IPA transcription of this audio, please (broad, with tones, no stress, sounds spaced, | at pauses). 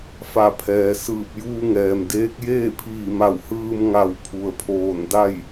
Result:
f a˧˩ pʰ ɛː˩ s ɯː˧˩ p̚ j uː˧ ŋ ɛː˩ m d eː˧˥ k̚ j eː˥˨ pʰ iː˧˩ m a˧˩ w h ɯː˧ m ŋ a˧˩ w pʰ u˩ ə̯ pʰ oː˧˩ n d a˥˨ j